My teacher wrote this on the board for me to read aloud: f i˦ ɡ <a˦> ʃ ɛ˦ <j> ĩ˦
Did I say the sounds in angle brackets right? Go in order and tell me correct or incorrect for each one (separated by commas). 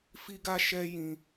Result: correct, correct